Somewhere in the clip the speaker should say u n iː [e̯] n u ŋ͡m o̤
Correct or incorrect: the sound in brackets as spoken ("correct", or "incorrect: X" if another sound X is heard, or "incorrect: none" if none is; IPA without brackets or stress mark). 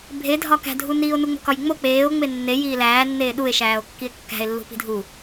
incorrect: o̯